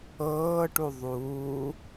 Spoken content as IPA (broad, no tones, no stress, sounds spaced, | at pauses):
ɤː ʈ u ðˤ uː